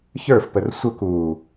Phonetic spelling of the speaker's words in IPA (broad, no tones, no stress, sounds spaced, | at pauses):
ç ə˞ f p ə r sʷ ə k uː